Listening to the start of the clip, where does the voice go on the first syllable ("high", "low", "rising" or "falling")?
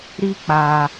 high